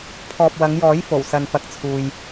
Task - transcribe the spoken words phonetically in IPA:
pʰ ɔː˨ p̚ w ɐ˨˧ ŋ j ɔː˨˥ j f o˨˩ w s ɐ˨ n p ɐ˨˥ k̚ t͡sʰ uː˨ j

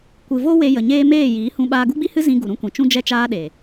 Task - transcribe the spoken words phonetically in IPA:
kʷ ɨ˨ v o˦ w e˧ j ə˨ ɲ eː˦ m eː˦˨ j iː˨˦ h ũ˧ ɓ aː˧ ɡ u˦ ɡ͡b i˦ h ɨ˦ z ĩ˧ ɡ u˨ ɾ ũ˦ kʷ ĩ˨ t͡ʃ ũ˦ d͡ʒ ɛ˦ t͡ʃ aː˦ ɗ e˨

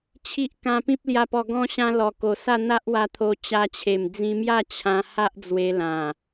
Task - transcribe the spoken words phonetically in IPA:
t͡ɕʰ i˦ ʔ k ã˧ p ĩ˦ p̚ l j a˧ p ɔ˧ ɡ ɔ̃˧ ɕ ã˧ l ɔ˨˩ k o˨˩ s a˥˧ n̪ a˦ ʔ w a˧ t̪ʰ o˧ t͡ɕ a˧ t͡ɕʰ e˨˩ m d͡z ĩ˧ m j a˥˧ t͡ɕʰ ã˧ h a˦ ʔ d͡z w e˧ l ã˨˩

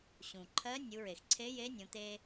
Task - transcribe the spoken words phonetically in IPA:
ɕ ũ˩ ǃʰ ɜ˧˥ nʲ u˩˧ ɹ e˩ x ǀʰ e˧˥ j e˧˥ nʲ õ˩˧ t̪ e˧

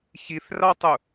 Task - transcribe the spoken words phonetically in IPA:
ç i θ r ɑ tˤ u

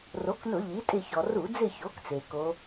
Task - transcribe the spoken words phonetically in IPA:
r o˩˥ k n ʊ˧˩˧ ʎ i˩˥ tʼ ɪ˦˨ ç ɔ˩ r u˧˩˧ d͡z ɪ˦˨ ç o˩˥ k t͡s e˩ k o˧˥

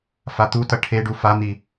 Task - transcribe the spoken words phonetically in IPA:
f a t̪ u t ʌ ʈʰ e ɖ u f a n̪ i

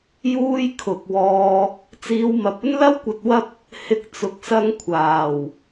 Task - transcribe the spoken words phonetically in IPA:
j uː˥ j kʰ ʊ˨ k̚ w ɔː˧ | t͡s iː˧ w m ɐ˨ p̚ ɵ˥ n l ɐ˥ w kʷ ɐ˧ t̚ w ɐ˥ p̚ | h ɪ˧ k̚ t͡s ʊ˨˥ k̚ s ɐ˧ ŋ kʷʰ aː˨˩ w

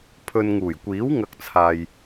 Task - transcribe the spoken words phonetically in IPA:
pʰ ɵ˧ n ŋ uː˨˩ j kʷ iː˨˥ w ŋ ɐ˧ k̚ t͡sʰ aː˨ j

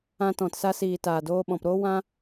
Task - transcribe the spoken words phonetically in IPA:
ã˧ t ɔ̃˨ t s a˧ s iː˨ t aː˨ d oː˧ ɓ ɔ̃˨ p ɾ oː˦ w ã˦

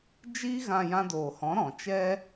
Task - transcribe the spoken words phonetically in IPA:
d͡ʒ iː˧ ɣ ã˨ j ã˧ d oː˨ h ɔ̃˨˦ ɾ ɔ̃˨ t͡ʃ ɛ˦

